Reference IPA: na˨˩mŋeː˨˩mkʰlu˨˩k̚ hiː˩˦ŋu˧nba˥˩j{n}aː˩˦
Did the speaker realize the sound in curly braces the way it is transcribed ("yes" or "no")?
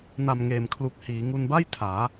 no